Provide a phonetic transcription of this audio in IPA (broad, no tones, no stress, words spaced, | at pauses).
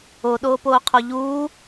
oɗoːpoːqʰo ʎuː